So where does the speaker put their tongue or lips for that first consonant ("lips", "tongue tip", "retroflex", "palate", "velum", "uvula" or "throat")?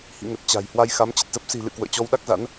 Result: throat